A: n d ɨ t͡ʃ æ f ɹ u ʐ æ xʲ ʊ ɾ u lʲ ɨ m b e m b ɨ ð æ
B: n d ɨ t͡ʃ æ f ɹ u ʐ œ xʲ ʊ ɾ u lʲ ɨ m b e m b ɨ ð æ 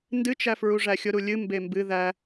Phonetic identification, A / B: A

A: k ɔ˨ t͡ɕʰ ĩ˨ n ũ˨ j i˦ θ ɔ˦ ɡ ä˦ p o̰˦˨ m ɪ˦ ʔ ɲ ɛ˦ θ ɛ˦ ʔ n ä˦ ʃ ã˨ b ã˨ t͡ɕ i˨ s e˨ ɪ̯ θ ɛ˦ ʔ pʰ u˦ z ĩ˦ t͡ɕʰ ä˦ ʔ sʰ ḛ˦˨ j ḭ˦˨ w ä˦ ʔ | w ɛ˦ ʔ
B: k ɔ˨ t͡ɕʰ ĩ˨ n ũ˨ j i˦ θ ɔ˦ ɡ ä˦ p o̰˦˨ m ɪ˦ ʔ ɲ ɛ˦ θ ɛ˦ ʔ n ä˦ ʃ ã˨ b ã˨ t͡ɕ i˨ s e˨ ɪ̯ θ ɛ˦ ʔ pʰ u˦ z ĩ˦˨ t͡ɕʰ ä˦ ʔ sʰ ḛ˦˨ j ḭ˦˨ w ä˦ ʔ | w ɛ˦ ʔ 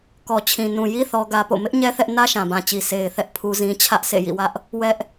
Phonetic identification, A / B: A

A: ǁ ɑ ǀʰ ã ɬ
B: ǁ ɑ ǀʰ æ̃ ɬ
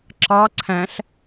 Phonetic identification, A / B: B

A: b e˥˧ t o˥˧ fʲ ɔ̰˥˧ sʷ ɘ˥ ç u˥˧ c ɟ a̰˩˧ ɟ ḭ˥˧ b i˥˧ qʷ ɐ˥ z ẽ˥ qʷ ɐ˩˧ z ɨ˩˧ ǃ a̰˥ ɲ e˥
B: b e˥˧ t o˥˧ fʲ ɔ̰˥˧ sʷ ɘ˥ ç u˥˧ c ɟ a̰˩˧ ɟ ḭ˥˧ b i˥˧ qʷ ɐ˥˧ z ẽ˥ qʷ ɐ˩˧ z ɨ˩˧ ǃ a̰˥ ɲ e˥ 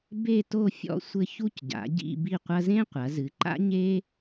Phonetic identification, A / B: A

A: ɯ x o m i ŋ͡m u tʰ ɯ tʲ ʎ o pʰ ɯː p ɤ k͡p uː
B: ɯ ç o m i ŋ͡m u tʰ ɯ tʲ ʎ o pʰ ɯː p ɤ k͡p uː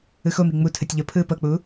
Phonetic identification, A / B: A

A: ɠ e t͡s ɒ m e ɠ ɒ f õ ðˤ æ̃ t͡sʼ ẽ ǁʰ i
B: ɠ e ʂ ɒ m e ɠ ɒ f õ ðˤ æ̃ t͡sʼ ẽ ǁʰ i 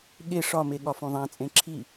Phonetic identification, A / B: B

